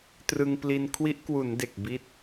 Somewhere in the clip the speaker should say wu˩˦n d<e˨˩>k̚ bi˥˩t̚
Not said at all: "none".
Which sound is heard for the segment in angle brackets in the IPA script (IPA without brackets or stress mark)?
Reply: e˨˩